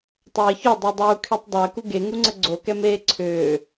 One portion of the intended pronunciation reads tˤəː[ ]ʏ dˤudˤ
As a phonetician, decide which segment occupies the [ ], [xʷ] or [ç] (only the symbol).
ç